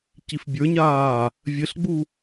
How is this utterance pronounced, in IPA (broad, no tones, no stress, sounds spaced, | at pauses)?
c i f bʲ ə˞ ɲ aː | vʲ ɘ ɬ ɡ͡b u